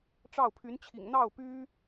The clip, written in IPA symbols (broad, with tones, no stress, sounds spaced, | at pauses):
ʈ͡ʂ ɑ˥˩ ʊ̯ pʰ y˧˥ n t͡ɕʰ ḭ˨˩ ŋ n̪ ɑ˥˩ ʊ̯ p y˥